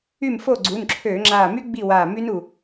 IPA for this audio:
y˥˨ m f o˥˨ ɡ͡ǀ u˩˧˩ n ǁʰ øː˧˩˧ ŋ͡ǁ aː˧˩ m y˦˥ ɡ͡b i˥˨ w aː˧˩ m y˦˥ n u˧˩

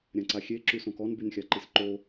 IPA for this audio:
ɾʲ ã ǀ a xʲ e ǁ y s õ k ɔ n b y n xʲ a ǃ i s ǃ o

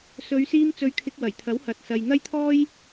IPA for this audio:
s ɵ˨˧ ɥ s iː˧ m t͡s ɵ˨˧ ɥ kʰ ɪ˧ k̚ w ɐ˨˩ j t̪ʰ ɐ˨˥ w h ɐ˨ t̚ s ɐ˨ j n̪ ɐ˥ j t̪ʰ ɔː˥ j

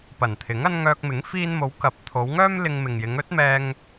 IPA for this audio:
p ɐ˨˩ n t̪ʰ ɪ˨˥ ŋ ɐ˥ n ŋ œː˧ k̚ m ɪ˨˥ ŋ f iː˧ n m o˨˧ w k ɐ˨˥ p̚ t̪ʰ o˨˧ w ŋ œː˥ m l ɪ˧ ŋ m ɪ˨ ŋ j ɪ˨˧ ŋ ɵ˨˥ t̚ m ɛː˧ ŋ

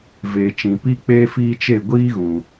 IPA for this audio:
v eː˨ t͡ʃ ĩ˨ p i˧ k͡p eː˧ f iː˧ t͡ʃ e˦˨ ɡʷ iː˦ ɣ ũ˨

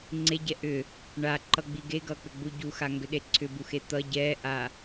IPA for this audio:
ŋ͡ǀ e ɟ ɛ ʔ ʏ | ɳ a ǃ ʌ ɡ͡b i ɡ e ɡ ʌ k͡p ʏ ɡ͡b u ɟ u x a ŋ ɡ ʏ ɗ e ǀʰ ʏ b u x e t̪ ʌ ɟ ɛ ʔ a

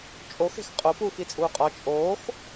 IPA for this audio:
t͡ʃʼ o x e̤ x qʼ o p uː x i t͡sʼ uː qʼ ɒ t͡ʃʼ oː x

